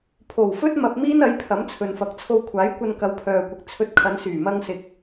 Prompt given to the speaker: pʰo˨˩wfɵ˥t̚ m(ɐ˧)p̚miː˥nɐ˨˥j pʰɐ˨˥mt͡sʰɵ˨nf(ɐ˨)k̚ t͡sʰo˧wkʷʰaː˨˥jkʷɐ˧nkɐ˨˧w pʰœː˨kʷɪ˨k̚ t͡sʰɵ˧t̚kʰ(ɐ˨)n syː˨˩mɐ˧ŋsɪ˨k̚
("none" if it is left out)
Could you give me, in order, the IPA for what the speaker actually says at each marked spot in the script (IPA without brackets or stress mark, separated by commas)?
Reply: ɐ˧, ɐ˨, ɐ˨˧